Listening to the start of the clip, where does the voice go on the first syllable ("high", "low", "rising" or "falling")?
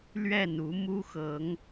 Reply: falling